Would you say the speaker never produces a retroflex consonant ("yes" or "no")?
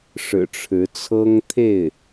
no